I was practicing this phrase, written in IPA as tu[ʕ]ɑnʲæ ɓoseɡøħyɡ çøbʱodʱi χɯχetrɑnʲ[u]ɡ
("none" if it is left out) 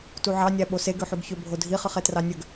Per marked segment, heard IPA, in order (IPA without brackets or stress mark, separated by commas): ʕ, ø